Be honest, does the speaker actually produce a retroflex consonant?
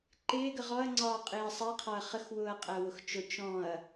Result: no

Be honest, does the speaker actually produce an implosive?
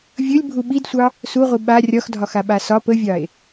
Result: yes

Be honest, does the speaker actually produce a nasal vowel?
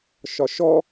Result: no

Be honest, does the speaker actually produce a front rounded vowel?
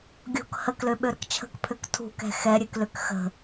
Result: yes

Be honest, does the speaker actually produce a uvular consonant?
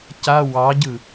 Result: no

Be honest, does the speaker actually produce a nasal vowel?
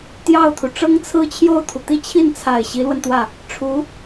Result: no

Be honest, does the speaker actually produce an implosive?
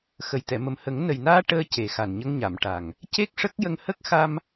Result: no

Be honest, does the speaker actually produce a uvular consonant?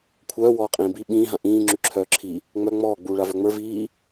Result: yes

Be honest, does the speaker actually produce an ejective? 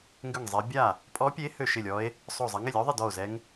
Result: yes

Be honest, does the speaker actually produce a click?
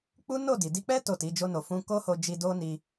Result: no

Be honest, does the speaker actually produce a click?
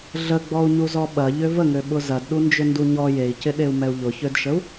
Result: no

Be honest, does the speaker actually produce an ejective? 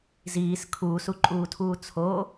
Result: yes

